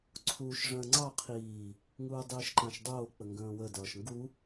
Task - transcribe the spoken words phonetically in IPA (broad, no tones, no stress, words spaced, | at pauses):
ǀʰuːʃʐə̃ːŋ͡ǀɑ qʰiː | ŋuːdˤiːʃǃãʃdˤoː k͡pəŋɡə̃ːwə dʌːʃŋɡu